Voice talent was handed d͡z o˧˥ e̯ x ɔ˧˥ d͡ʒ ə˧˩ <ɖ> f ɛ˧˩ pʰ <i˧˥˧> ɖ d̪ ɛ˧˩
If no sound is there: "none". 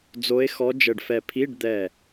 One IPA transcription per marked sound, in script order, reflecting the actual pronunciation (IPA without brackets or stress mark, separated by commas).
ɖ, i˧˥˧